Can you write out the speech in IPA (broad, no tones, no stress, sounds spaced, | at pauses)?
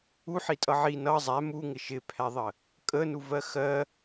u ħ i tʼ ʌ ʕ i n ʌ zˤ æ m u ŋ ɪ ʃ ɪ pʰ æ ðˤ ə | kʼ ə n u v ɜ x ɜ